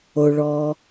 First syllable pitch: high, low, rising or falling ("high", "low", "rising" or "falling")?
low